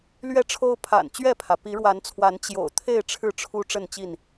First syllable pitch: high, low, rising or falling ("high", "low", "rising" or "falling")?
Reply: falling